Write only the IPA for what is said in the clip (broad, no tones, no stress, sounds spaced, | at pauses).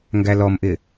ŋ ɡ æ l ɔ m ʔ ɪ